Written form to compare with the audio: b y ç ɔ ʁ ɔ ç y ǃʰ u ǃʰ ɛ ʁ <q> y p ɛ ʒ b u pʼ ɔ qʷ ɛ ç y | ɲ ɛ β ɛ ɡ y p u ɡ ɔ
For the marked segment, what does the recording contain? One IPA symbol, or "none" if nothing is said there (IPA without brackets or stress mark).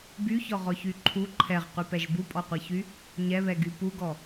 q